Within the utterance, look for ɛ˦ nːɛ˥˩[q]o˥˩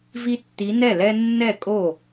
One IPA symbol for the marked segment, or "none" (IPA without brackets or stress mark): kʼ